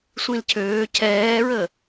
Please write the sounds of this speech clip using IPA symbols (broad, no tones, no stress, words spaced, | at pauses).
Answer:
sʷĩlcʰøː cʰɛːɹə